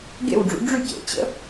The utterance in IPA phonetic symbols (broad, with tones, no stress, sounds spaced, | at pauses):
ɡ ḛ˥˩ w ɖ͡ʐ ṵ˩˥ ɖ͡ʐ y˥˩ c ḛ˩ t͡ɕ ə̰˥